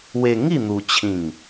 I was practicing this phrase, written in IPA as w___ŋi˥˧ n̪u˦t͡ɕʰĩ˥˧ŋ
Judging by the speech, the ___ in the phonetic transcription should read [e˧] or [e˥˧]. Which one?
e˧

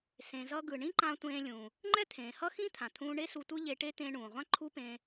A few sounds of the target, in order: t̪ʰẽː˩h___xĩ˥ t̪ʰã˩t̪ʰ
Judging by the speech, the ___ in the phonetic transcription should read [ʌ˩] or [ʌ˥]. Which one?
ʌ˥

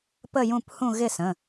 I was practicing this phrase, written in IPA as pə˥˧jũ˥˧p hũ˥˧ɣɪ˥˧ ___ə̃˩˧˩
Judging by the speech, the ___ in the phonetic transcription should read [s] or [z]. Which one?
s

